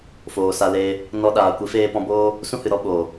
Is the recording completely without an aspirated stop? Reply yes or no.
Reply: yes